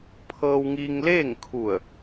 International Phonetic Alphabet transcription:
pʰɤː˧wŋi˧ŋleː˥˨ŋkʰu˧˩ə̯

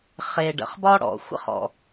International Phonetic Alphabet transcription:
χe˨ ɖə̰˨χbɒ˦ɽɔ̰˨ xʷə̰˦χɔ̰˨

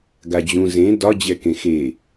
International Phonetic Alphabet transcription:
ɡad͡ʑũ zẽ dɒ d͡ʑɛkẽxe

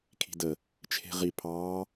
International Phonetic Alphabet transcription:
kʰi̤də | t͡ʃʰe̤ʁi pʰɑː

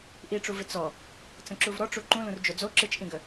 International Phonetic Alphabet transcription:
ʔiʈ͡ʂuvɪ t͡sɔ | t͡sə̃ǁuvɾɔʈ͡ʂu ǃũlũr d͡ʒod͡zo ǁɨt͡ʃʔĩɡə

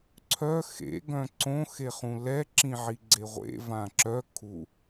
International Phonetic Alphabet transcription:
ǀʰœ xḛ ɡœ̃ǀõ xeχũlɛ ǁĩʕiɡ͡ǀeʁʷḛ vãǁœ kʰu

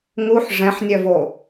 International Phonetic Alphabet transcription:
ŋuħ ʐɛ̃ħnʲœvo

